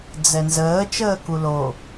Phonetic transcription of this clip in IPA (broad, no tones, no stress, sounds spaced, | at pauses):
d͡z ɛ n z əː t͡ʃ əː k u l o